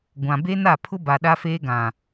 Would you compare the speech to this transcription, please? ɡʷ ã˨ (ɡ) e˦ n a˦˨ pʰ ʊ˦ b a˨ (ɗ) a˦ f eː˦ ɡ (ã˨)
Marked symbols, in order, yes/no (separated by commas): no, yes, yes